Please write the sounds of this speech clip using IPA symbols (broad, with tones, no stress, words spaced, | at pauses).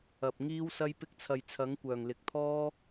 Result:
ɐ˨p̚ ŋiː˥wsɐ˥jpɪ˥k̚t͡sʰɐ˧j t͡sʰɐ˨˥ŋkʷœː˨˩ŋlɪ˨k̚t̪ʰɔː˥